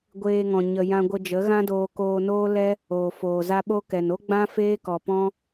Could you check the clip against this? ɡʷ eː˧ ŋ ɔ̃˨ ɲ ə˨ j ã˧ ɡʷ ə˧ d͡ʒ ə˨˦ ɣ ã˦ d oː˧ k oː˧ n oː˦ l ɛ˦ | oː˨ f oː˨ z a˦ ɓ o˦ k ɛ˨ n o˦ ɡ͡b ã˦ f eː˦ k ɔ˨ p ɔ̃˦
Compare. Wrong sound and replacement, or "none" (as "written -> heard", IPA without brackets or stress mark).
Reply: none